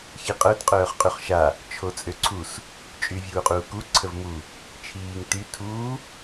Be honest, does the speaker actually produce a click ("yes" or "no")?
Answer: yes